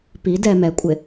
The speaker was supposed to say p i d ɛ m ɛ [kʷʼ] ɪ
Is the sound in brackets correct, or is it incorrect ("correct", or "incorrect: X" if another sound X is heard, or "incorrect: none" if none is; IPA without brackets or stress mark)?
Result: correct